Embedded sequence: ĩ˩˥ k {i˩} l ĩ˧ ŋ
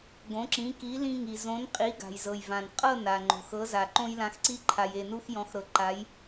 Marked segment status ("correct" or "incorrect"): incorrect